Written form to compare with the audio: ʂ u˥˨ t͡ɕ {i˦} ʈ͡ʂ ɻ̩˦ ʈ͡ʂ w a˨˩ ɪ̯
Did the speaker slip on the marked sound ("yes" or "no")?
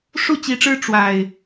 yes